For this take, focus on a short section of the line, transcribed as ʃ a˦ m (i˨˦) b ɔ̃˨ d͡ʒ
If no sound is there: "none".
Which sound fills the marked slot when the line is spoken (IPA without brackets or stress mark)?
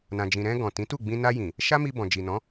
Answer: i˧